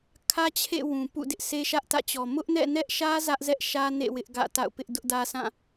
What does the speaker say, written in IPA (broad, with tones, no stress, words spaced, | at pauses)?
kʰä˦t͡ɕʰḛ˦˨ wũ˨pṵ˦˨dɪ˦ʔ sʰe˦ʃä˦ʔtä̰˦˨t͡ɕɔ˨ mʊ˦ʔnɛ̰˦˨nɛ˦ʔʃä˦ zä˦ʔzɛ˦ʔʃä˦nḛ˦˨ wɪ˦ʔɡä̰˦˨ ta̰˦˨ʊ̯pɪ˦ʔ dʊ˦ʔdä˦ sʰã˦˨